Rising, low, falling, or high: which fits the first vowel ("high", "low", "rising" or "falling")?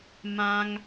high